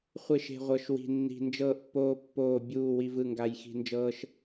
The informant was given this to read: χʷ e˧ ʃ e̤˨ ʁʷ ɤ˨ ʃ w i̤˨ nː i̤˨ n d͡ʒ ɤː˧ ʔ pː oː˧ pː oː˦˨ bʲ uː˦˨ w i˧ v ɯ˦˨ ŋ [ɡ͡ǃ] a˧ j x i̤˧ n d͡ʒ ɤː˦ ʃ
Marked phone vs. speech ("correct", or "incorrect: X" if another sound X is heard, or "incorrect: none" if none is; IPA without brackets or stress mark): incorrect: ɡ